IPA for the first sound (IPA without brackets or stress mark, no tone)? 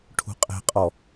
ʈʰ